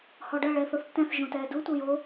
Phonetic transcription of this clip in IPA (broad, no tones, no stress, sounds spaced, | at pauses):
h ɔ ɖ ɐ ɭ ɛː θ o θ tː ɛ̃ θ ʒ õ t ɛː d u tʷ ɐ j o